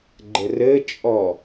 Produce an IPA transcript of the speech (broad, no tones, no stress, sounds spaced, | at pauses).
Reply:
ɡ͡ǃ ɘ r ɘ t͡ʃʼ ɔ